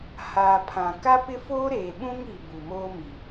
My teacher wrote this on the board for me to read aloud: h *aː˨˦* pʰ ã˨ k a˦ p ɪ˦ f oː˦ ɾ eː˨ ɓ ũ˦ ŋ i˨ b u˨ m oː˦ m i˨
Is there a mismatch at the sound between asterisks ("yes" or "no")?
yes